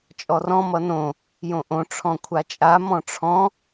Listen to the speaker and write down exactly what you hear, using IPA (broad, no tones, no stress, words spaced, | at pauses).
t͡ʃʼɔrɔ̃ mʌnõ | jõʔõ ʈ͡ʂʰɔ̃kʷʰat͡ʃʼa mɔ̃ʈ͡ʂʰɔ̃